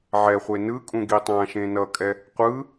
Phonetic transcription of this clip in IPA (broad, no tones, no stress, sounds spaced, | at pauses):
ʕ ɛ χʷ e n ɯ kʼ ũ ɡ i tˤ ã ʃ ẽ n ʌ kʼ ɛ | qʷ ɯ